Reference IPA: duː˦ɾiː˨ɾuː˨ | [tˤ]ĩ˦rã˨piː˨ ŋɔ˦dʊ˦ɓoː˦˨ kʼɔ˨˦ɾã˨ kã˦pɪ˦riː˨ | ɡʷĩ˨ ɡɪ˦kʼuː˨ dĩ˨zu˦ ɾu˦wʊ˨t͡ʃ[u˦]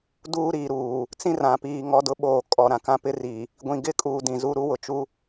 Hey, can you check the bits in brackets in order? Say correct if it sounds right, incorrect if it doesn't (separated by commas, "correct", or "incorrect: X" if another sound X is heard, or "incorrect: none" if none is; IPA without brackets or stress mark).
incorrect: t͡s, correct